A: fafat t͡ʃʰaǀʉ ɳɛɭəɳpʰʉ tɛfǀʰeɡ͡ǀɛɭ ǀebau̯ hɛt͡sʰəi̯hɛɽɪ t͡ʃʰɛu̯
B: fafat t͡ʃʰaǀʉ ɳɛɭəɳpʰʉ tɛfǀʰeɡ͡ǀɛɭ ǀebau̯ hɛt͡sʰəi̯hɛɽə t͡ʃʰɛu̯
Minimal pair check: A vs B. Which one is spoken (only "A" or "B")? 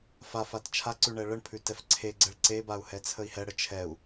B